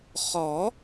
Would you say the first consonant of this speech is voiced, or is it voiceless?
voiceless